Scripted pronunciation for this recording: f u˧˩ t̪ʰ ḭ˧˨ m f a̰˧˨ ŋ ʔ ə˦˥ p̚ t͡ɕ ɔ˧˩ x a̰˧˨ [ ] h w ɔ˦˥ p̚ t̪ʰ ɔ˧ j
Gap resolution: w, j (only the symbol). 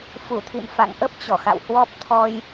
w